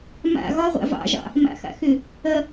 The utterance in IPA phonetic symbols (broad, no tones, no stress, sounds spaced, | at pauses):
m a̰ ɣ ɒ ʁʷ a̰ v ɑ̰ ʒ ɑ̰ | m a̰ x a̰ x ʏ | ɐ